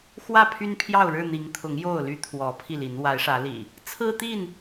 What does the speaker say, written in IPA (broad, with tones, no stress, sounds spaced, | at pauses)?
x w ä˥˨ pʰ y˦ n pʰ j ɑ˥˨ ʊ̯ ɻ ɻ̩˥˨ n̪ i˨˦ ŋ t̪ʰ ʊ˨˦ ŋ j o˥˨ ʊ̯ l y˦ t̪ʰ w ɔ˨˦ pʰ i˥˨ l i˨˦ n w a˨˦ ɪ̯ ʂ ä˨˦ l ḭ˨˩ | t͡sʰ ɹ̩˦ t̪ i˥˨ n